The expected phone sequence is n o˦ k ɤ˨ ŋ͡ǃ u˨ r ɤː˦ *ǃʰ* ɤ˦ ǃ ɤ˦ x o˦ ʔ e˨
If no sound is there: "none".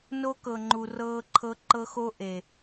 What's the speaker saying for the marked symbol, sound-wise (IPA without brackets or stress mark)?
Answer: ǃʰ